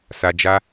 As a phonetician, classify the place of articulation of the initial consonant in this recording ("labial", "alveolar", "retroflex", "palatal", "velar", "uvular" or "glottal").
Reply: alveolar